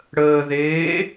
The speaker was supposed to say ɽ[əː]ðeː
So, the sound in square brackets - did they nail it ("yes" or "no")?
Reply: yes